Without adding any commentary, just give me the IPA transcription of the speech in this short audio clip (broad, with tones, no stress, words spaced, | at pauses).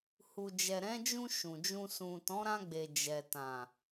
hu˨ d͡ʒɛ˨ɾɛ̃˨˦d͡ʒũ˧ ʃũ˨d͡ʒũ˧ sũ˨ tɔ̃˨˦ɾã˧ɡ͡be˨ d͡ʒɛ˨ tã˨